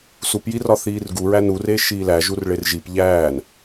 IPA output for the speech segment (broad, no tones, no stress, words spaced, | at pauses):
supjirɒ θiːrɡuɹæ nure ʃiːlæ ʒurɭerʒip ʎæːn